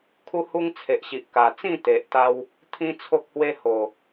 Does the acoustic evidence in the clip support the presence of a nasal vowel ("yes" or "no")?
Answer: yes